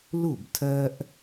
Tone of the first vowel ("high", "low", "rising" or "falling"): falling